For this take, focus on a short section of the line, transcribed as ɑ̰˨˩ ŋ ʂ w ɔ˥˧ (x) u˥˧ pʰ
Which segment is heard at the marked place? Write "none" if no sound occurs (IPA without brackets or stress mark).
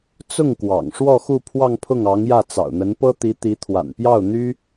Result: x